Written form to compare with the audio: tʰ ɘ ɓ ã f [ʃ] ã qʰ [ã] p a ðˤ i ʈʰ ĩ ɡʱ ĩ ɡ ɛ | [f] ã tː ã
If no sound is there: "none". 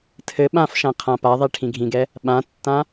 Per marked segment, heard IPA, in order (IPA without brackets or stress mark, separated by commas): ʃ, ã, ɓ